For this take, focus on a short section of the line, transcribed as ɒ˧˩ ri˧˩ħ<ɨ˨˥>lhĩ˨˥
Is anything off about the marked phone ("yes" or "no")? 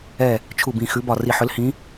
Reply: yes